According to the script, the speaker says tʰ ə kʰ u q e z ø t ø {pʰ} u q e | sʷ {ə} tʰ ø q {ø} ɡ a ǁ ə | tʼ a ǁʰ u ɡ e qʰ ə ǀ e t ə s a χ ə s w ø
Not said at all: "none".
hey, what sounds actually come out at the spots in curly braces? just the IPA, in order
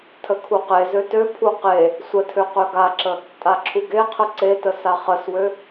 pʰ, ə, ø

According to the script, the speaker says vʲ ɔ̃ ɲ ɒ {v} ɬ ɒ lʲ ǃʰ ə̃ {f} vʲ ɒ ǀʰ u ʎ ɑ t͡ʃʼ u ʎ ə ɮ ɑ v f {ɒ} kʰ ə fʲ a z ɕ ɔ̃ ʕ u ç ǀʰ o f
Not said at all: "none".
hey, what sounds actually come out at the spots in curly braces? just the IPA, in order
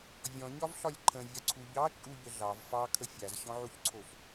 v, none, ɑ

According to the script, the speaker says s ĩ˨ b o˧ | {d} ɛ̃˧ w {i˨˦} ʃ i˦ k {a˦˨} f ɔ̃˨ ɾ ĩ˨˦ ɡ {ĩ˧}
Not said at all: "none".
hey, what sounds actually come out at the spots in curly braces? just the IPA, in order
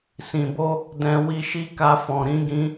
d, i˧, a˧, ĩ˧

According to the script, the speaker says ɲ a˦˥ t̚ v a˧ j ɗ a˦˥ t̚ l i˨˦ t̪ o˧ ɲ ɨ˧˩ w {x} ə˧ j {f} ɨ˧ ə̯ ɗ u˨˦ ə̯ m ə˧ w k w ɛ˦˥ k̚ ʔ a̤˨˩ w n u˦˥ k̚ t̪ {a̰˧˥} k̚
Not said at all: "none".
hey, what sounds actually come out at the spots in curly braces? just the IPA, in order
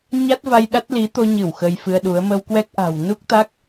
x, f, a˦˥

